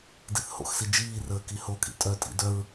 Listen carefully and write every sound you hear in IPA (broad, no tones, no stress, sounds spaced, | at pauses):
d i θ h o̰ x s i d͡ʒ iː r əː k i h o kʼ ḭ tʼ œ tʼ ḭ d œ ɹ